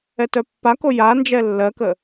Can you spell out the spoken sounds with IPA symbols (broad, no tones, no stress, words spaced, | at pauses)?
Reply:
ɛtœpːako ja nd͡ʒɛlːɜkə